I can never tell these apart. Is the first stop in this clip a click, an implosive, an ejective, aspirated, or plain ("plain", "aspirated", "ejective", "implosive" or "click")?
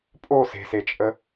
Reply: ejective